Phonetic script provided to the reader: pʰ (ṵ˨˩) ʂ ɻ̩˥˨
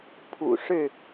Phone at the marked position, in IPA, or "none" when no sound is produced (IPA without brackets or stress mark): ṵ˨˩